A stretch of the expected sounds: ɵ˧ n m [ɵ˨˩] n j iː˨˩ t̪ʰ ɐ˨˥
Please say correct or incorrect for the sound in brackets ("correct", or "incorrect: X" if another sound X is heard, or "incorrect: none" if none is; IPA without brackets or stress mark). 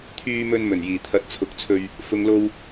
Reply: correct